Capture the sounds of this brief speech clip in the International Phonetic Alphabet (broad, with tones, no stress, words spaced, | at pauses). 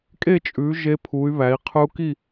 kʼe˥˧t͡ʃʼʉ˨˦ ʒe˦˥pʰu˨˦y̯ βæ˨˦i̯qʰʉ˦˥u̯ ki˥˧